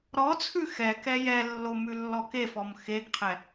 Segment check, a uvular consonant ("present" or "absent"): present